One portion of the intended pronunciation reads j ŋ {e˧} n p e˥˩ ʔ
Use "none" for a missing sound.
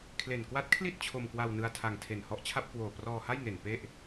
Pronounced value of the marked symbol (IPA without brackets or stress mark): e˨˩